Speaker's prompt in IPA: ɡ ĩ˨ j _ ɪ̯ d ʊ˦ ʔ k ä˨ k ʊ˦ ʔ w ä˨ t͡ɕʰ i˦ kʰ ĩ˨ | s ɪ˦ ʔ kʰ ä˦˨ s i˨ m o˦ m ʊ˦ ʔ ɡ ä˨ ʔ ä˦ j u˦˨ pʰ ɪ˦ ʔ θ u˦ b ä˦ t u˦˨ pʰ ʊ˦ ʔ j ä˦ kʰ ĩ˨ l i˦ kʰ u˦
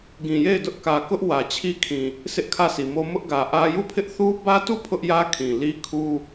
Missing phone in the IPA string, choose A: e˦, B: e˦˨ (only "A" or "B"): B